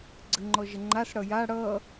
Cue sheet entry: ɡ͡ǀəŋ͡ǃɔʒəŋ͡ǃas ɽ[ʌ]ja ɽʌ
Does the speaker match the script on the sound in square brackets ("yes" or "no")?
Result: yes